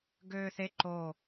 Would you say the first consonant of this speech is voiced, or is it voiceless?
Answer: voiced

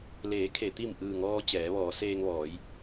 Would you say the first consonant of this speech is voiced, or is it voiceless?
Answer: voiced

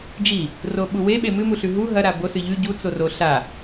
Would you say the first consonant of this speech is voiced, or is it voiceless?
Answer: voiced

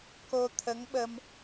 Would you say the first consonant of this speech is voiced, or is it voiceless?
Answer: voiceless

